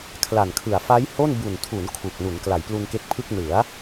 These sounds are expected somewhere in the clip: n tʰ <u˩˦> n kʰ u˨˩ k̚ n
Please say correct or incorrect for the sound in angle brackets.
correct